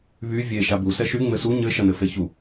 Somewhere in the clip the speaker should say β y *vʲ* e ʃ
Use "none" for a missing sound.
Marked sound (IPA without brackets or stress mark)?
vʲ